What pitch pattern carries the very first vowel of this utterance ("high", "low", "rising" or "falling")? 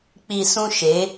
low